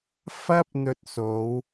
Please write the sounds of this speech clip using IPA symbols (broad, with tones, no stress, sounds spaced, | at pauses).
f ɐ˥ p̚ n̪ ɵ˧ t̚ s o˨˧ w